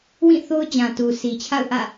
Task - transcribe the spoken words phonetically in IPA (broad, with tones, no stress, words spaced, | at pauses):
wĩ˦˨ θo˦ʊ̯d͡ʑã˨tu˨ sʰi˨t͡ɕʰa̰˦˨ʊ̯ʔä̰˦˨